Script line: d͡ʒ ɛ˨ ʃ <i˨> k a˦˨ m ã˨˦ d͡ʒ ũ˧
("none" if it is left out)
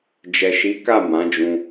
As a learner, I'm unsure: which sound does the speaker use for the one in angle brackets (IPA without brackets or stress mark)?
i˨˦